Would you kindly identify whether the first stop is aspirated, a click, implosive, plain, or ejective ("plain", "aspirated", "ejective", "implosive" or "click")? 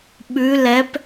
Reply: implosive